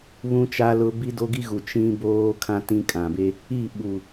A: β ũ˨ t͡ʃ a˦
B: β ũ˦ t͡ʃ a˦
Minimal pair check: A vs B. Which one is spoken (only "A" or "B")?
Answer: B